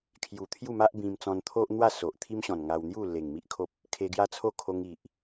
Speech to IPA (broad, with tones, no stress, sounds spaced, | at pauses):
kʰ j u˨˩ t̪ʰ j u˥˧ m a˦ ʔ b ĩ˧ m t͡s ɔ̃˧ n t̪ʰ o˦ ʔ n̪ w a˥˧ s o˨ ʔ t̪ʰ i˦ m ɕ ɔ̃˨˩ n ŋ a˧ w n̪ j u˥˧ l e˨˩ ŋ m i˦ ʔ kʰ o˦ p̚ | kʰ e˧ ɡ j a˦ t͡sʰ o˦ kʰ o˧ ŋ i˨ ʔ